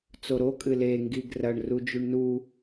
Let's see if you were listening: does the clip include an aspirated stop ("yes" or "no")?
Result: no